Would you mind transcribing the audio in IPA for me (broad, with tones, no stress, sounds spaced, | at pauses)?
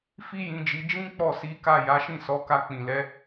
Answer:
f i˦ j ĩ˧ d͡ʒ i˧ d͡ʒ ĩ˦ k͡p ɔ˦˨ s i˨˦ k a˦˨ j a˨˦ ʃ ĩ˦˨ s ɔ˨˦ k a˧ k͡p ĩ˨ l ɛ˨˦